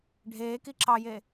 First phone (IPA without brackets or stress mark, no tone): ɖʱ